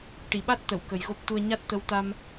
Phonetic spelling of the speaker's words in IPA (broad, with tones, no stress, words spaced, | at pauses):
ʈi˨˩˨ɓa˦˥t̚t̪ə˨˩˨w kə˨˩jɣo˦˥p̚t̪u˧ə̯ ɲa˦˥t̚t̪ə˧˥wt̪a˧m